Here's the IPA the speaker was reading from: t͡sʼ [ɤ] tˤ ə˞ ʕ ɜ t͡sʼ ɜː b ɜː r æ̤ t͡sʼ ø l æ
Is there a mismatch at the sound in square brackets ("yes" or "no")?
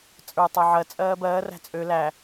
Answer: yes